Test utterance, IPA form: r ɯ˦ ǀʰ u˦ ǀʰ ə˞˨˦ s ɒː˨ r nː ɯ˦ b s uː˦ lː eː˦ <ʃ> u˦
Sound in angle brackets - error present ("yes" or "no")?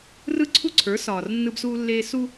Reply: yes